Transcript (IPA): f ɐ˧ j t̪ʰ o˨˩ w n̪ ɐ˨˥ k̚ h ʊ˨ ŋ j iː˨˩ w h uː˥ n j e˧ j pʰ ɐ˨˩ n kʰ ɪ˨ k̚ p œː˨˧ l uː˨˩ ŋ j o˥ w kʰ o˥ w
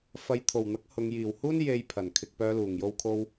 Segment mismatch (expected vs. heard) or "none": none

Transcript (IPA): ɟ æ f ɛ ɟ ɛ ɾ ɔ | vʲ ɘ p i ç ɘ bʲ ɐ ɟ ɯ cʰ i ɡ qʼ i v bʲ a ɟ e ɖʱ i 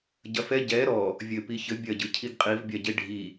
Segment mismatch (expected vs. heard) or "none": æ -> ɐ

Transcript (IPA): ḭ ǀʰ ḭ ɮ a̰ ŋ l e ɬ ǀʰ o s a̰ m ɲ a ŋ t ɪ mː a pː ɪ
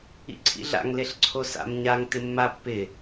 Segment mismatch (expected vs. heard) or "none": none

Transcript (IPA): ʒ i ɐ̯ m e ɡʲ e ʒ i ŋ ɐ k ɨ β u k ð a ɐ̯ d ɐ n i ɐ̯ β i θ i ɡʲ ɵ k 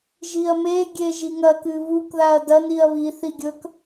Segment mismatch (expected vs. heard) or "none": none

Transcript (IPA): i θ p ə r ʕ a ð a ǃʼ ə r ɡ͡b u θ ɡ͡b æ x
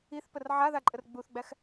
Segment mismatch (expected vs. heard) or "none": none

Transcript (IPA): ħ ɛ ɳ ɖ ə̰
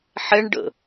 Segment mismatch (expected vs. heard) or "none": none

